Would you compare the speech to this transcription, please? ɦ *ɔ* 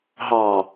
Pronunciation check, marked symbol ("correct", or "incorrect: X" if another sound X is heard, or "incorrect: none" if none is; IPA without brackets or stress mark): incorrect: ɑ